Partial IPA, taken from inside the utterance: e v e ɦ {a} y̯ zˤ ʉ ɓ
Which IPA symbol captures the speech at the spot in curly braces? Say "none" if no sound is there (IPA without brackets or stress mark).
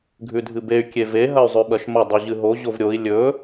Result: ɐ